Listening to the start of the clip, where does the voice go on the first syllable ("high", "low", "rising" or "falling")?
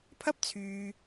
high